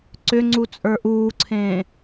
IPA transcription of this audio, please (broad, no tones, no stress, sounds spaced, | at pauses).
ǀ ʏ ŋ͡ǀ u t͡sʼ ə˞ ʔ uː ǀʰ ẽː